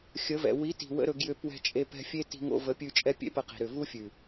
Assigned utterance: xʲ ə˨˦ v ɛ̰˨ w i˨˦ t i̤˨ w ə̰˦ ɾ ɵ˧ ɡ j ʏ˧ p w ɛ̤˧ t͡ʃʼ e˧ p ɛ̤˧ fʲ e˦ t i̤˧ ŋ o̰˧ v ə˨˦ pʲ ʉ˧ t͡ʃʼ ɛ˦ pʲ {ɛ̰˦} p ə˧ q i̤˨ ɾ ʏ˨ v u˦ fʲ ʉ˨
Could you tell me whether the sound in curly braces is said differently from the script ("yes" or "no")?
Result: yes